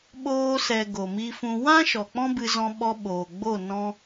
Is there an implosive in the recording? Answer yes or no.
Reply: yes